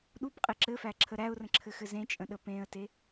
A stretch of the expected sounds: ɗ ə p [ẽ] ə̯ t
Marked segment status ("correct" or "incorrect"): correct